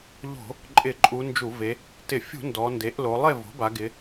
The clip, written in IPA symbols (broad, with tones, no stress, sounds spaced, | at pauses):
ʎ o̤˧˩˧ | ǃʼ ɪ˧˩˧ ǃʼ u˩˧ n d͡ʒ u˧˩˧ v e˩˧ | t ɪ˧˩˧ fʲ ṳ˧˩˧ n d ɔ˩˧ n d e˩˥ ʔ l o˩˧ lˠ e˥˨ v o̤˩˥ b a˩˧ ɡ ɪ˩˧